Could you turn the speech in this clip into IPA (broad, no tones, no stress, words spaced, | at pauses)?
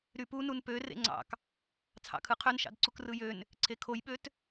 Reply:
ɾypunun pø rḛŋ͡ǀɑ̰k | t͡sʰɑ̰kʰɯqʰønʃɑ̰d ǀukrɯjøn | ǀʰekʰojɓøt